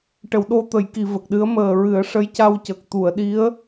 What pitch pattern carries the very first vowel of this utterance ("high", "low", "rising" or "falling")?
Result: low